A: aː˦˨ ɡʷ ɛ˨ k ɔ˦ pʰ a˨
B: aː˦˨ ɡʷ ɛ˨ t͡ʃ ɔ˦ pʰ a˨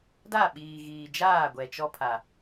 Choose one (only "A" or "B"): B